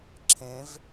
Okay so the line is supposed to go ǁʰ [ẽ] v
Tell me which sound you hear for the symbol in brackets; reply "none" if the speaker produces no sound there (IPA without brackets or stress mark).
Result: ẽ